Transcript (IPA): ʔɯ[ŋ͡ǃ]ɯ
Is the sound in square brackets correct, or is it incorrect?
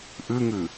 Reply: incorrect